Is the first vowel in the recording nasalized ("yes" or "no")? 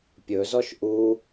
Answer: no